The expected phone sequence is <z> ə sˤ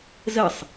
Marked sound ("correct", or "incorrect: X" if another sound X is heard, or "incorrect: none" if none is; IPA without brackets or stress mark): correct